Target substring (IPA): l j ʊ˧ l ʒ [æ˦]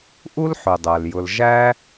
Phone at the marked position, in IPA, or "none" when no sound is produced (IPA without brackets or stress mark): æ˦